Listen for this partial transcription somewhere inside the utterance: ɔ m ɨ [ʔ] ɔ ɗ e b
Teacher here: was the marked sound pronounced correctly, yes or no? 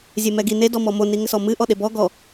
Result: yes